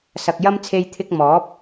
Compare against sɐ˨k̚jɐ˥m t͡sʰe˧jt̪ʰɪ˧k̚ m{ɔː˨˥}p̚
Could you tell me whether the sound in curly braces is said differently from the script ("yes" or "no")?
no